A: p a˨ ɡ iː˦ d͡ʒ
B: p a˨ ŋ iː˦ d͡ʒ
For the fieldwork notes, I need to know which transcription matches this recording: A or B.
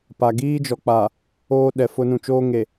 A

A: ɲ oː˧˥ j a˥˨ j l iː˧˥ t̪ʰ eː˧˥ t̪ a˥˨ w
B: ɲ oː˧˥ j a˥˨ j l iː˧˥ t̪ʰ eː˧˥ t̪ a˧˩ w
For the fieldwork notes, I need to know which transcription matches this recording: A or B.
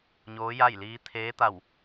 B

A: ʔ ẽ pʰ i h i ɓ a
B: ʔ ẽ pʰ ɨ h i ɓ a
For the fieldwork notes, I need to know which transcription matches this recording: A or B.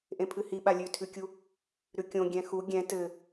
B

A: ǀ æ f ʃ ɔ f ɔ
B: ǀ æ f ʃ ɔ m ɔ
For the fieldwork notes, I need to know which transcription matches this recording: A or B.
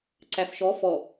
A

